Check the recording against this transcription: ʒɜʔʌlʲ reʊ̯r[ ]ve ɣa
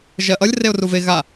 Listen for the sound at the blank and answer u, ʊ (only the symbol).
u